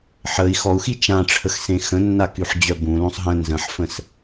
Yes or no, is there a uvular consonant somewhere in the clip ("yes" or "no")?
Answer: no